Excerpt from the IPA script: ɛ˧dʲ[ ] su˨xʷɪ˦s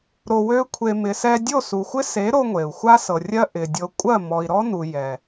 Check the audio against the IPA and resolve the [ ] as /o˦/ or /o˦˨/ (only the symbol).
o˦˨